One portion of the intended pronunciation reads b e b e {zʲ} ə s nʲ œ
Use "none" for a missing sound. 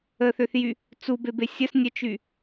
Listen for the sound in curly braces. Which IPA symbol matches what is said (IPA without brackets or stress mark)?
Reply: sʲ